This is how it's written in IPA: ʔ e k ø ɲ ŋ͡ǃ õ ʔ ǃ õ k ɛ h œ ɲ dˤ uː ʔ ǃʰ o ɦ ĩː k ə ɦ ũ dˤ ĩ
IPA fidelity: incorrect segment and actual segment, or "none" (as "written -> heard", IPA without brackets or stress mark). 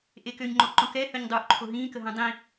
none